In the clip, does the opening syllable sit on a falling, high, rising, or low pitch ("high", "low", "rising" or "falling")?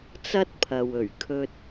high